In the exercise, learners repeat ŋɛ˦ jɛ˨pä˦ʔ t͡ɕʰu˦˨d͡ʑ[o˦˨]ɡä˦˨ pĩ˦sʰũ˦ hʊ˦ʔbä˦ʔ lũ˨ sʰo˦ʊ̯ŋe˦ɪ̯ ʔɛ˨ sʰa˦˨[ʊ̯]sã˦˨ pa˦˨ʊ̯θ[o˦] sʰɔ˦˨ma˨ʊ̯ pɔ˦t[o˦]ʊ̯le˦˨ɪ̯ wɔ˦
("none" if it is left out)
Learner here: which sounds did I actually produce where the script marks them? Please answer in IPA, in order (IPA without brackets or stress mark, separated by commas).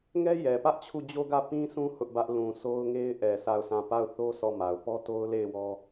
o˦, ʊ̯, o˦, o˦